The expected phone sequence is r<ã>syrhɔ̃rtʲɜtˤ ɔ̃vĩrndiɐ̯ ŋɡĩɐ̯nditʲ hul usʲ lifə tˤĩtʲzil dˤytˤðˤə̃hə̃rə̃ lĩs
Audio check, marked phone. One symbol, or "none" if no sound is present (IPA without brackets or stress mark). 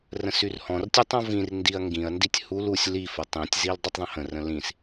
ə̃